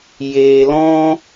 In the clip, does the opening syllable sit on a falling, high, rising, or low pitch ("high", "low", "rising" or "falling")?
low